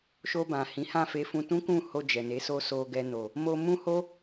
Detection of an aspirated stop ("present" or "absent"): absent